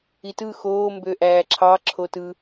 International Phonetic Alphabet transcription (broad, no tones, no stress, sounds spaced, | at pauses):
i t ɯ x oː m b ø ʔ æː ǁʰ ɑ ǁʰ o t ɯ